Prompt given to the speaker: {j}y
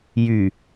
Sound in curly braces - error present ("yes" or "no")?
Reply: no